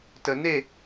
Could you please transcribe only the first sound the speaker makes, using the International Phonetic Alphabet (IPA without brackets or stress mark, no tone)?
t